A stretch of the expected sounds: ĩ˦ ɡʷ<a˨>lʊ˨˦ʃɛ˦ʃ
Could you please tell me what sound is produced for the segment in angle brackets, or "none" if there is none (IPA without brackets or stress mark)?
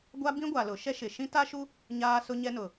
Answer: a˨